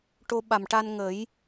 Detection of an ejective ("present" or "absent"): absent